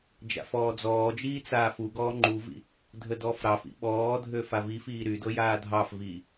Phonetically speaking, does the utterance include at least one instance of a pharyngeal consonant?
no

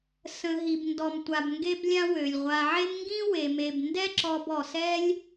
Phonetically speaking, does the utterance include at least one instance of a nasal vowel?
yes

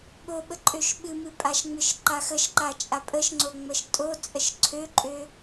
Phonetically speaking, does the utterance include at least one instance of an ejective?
yes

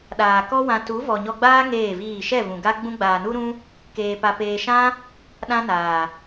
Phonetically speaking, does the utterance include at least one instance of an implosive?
yes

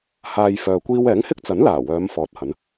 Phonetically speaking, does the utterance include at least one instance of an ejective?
no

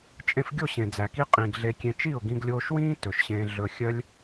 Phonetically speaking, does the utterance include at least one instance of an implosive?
no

